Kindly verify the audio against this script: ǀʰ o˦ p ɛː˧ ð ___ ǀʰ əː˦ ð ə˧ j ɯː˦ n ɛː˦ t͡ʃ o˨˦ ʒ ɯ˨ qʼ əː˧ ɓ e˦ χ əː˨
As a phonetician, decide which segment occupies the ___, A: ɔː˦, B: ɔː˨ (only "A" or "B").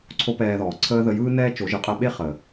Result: B